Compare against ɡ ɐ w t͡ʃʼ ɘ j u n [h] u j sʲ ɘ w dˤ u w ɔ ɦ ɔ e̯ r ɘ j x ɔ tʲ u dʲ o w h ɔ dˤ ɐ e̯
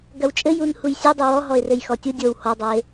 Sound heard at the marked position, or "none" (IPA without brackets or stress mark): h